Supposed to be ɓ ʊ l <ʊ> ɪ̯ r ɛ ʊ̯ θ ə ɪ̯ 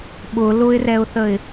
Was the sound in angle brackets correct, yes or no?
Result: yes